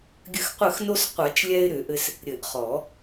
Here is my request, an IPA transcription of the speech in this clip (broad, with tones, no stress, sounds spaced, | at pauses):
ɡʲ ɘ˧˩ x qʷ ɘ˧˩ x n o˧ s qʷ a˨˩˦ t͡ʃ lʲ ɛ˧ ɪ̯ ɾ ʏ˨˩˦ ʔ ɘ˧ s | ɾʲ ɘ˨˩˦ ʔ χ ɔ˨˩˦